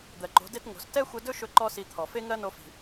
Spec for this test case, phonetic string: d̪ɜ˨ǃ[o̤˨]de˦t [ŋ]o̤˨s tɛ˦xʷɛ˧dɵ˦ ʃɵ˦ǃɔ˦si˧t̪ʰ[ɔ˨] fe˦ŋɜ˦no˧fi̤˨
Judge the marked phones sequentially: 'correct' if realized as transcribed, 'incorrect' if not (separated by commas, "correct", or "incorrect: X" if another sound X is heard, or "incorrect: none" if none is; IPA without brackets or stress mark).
incorrect: o̤˨˦, correct, correct